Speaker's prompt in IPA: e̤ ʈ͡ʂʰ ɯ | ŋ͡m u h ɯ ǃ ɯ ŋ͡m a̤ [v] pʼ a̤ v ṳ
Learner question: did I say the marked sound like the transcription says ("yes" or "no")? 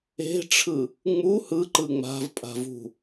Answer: yes